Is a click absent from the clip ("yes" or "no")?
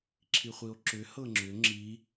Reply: no